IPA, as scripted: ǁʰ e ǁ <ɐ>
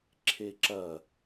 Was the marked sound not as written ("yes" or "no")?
no